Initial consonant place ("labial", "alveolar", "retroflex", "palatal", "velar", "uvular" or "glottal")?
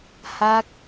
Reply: glottal